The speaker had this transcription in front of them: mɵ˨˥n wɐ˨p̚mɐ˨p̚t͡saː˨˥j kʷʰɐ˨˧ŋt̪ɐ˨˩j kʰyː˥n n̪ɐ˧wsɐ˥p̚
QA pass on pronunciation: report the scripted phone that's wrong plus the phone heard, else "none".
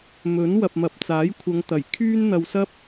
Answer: none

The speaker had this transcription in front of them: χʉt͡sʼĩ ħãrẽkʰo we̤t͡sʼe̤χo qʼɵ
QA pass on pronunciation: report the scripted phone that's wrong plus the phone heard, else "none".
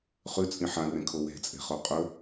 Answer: none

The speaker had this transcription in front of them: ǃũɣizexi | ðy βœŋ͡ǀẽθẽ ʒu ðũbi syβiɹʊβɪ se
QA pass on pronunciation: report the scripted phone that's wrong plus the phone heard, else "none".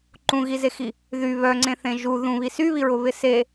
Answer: b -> β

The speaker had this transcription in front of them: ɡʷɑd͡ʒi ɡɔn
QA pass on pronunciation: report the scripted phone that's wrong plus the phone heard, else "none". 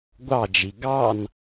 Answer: ɔ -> ɑ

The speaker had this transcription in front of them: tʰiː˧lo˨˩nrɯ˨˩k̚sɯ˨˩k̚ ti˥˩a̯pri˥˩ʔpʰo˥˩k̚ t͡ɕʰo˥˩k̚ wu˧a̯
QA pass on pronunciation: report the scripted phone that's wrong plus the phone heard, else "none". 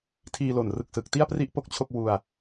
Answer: pʰ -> p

